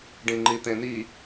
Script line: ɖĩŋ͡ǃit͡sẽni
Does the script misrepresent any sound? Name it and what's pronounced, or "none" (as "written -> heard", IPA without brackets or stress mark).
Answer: t͡s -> t̪